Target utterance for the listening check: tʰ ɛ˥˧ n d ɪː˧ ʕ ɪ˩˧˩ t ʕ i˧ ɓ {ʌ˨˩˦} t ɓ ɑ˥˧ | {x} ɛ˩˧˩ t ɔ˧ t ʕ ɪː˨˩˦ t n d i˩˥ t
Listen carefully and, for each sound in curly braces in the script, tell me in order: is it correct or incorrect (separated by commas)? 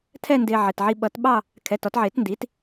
correct, incorrect